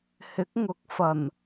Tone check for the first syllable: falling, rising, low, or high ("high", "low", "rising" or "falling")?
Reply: rising